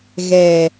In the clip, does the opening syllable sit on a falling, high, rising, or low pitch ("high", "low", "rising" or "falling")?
low